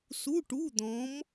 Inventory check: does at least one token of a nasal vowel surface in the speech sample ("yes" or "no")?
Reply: yes